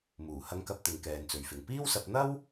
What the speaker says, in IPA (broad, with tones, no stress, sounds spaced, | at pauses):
m uː˨˩ h ɐ˨˧ ŋ k ɐ˨˥ p̚ t̪ ɪ˨˧ ŋ k ɛː˨ n t͡s ɵ˨˧ ɥ f ɪ˨ ŋ p iː˥ w s ɐ˧ p̚ n̪ ɐ˥ w